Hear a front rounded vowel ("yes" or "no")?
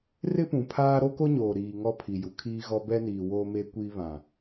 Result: no